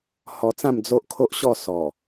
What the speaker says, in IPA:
hɔ˧t͡sã˥˧m d͡zo˦ʔ kʰo˦ʔɕɔ˥˧ sɔ˨˩

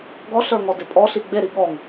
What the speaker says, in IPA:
ɡɔɬə˞ŋɔdɪ pʼɔɬi ɡ͡beɾi ɠɔŋ

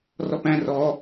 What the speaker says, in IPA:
rɔpæ̃ rɔ

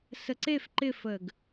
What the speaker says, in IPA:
səǀef ǃɪfəɡ

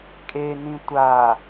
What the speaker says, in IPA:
kʼenĩ tʷa

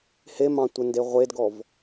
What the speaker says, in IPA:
hemɑ̃ tʷənde ʁʷedɡɔv

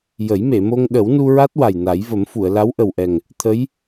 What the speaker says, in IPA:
jə˨˩˦j me˨˩˨mo˧ŋ ɗə˨˩˦wnu˧ɹa˦˥t̚ wa˨˩jna˨˩˦jvə˨˩˦mfu˨˩˨ə̯ la˧˥wʔə˨˩wʔɛ˨˩ŋ | t̪ʰə˧˥j

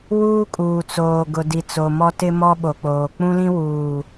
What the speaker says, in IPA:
wuː˦kʼuː˨t͡soː˨ɡʊ˨ di˨t͡so˨mɔ˦ tɪ˦ mɔ˦ɓo˨k͡poː˨ k͡pũ˦lĩ˦wuː˨

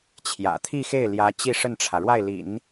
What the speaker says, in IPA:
t͡ɕʰjä̰˨˩ t̪ʰi˥˧xe˥˩ɪ̯ljä˧˥ t͡ɕi˥˧ʂə˥˩nʈ͡ʂʰä˩ɻwa˥˩ɪ̯ lḭ˨˩˦n

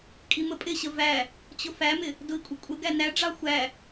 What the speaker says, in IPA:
kʼiməpʼɪɕə væ | t͡ɕʊfæmɪ | dʊi̯kʷʼɪkʷʼəɡæ næɖ͡ʐɑ xʷæ

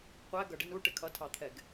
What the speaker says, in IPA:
qʷæ ɡʌɖɪn uʈɪ kʰʌtʰɑt̪ʰɛɡ

